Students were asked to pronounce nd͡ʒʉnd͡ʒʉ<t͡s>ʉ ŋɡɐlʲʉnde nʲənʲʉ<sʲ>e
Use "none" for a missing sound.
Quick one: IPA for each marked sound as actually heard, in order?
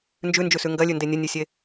s, sʲ

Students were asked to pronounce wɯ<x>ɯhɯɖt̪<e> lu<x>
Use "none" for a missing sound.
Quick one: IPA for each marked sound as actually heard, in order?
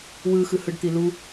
x, i, none

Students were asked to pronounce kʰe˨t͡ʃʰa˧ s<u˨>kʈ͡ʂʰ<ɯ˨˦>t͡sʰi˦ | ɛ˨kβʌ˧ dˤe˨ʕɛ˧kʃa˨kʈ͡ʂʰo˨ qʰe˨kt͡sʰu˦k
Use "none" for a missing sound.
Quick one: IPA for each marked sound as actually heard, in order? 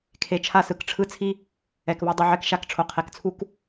ɯ˨, ɯ˦

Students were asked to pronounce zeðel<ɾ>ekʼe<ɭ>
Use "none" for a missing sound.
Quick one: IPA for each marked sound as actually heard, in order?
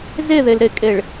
ɾ, ɭ

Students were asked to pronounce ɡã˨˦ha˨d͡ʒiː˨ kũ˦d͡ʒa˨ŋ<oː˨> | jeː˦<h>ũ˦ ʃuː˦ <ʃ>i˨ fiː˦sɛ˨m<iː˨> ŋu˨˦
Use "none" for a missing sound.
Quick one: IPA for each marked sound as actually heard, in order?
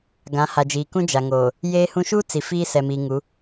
oː˨, h, t͡s, iː˨

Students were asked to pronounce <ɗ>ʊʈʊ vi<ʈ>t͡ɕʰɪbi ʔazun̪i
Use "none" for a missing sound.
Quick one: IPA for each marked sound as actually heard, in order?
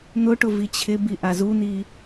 n̪, none

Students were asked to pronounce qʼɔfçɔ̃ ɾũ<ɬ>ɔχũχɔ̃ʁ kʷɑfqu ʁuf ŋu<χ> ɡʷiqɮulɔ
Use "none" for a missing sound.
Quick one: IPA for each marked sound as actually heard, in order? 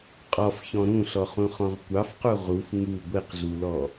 ɬ, none

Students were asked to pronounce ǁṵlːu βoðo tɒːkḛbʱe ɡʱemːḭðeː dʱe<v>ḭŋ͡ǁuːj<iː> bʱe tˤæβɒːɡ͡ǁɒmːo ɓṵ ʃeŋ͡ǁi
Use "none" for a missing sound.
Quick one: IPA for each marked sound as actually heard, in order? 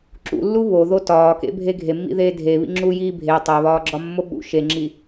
β, iː

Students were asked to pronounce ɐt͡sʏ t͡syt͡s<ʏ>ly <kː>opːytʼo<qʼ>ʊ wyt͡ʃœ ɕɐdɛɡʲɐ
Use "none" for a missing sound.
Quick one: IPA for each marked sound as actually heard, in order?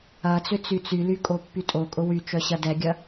y, kʼ, kʼ

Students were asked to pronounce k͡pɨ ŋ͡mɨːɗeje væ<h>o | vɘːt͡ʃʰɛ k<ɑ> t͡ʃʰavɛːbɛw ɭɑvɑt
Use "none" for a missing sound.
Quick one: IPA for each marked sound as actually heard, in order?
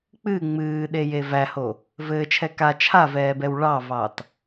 h, a

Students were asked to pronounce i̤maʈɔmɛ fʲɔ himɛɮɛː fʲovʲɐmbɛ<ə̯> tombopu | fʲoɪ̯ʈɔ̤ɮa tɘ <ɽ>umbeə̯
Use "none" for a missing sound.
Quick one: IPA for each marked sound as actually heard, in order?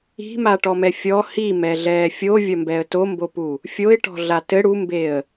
ə̯, ɽ

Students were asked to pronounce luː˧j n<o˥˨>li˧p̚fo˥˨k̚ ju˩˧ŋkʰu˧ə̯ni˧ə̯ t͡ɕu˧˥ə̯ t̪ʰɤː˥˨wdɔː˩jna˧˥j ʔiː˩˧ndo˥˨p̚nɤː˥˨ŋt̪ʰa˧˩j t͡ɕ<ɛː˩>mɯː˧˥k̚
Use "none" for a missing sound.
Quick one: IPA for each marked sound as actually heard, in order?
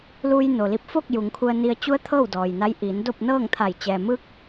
o˩, ɛː˩

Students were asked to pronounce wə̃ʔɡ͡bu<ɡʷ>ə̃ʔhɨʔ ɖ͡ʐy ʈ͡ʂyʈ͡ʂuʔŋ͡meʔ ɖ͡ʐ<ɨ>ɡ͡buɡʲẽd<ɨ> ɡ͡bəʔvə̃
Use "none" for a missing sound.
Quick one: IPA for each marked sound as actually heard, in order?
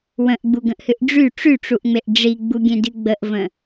ɡ, i, ɨ

